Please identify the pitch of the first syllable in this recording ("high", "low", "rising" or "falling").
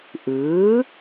rising